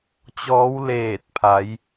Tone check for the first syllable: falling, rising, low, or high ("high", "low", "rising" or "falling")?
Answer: rising